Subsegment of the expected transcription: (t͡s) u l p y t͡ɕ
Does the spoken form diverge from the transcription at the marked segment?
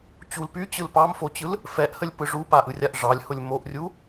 yes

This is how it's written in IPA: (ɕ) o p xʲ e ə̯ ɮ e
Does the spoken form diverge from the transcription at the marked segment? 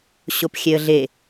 no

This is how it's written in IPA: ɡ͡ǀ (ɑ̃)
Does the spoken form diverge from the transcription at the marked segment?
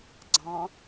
no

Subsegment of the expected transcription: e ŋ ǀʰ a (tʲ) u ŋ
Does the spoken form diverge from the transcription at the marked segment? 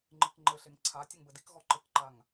no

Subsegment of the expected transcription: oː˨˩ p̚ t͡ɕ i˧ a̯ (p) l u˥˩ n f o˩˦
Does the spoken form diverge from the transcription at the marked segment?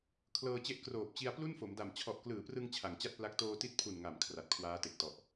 no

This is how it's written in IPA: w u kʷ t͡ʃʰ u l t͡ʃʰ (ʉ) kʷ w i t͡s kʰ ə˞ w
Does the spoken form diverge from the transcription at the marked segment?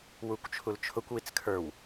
yes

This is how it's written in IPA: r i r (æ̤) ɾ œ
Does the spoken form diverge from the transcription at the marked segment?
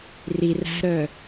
no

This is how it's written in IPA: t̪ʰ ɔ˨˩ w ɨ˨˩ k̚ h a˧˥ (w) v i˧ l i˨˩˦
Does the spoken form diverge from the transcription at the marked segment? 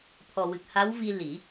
no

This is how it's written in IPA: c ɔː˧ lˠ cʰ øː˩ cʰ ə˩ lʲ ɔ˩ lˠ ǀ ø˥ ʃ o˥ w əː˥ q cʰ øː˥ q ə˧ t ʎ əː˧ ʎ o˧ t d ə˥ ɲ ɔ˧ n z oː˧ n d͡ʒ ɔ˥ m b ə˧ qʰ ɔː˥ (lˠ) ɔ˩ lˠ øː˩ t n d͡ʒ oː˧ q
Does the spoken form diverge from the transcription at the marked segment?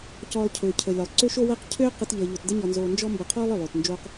no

